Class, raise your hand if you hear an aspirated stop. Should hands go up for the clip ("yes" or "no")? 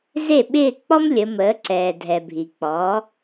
no